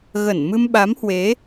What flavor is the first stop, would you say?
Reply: implosive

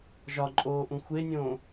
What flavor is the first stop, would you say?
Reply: click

